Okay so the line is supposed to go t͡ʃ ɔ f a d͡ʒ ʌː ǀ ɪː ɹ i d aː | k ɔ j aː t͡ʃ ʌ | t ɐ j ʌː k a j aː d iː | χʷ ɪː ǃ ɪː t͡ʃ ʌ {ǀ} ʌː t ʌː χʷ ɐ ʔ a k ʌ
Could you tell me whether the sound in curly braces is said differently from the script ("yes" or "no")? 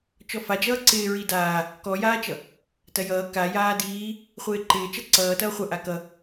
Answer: no